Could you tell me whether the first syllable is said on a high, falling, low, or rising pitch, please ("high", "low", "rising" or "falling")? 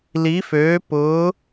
rising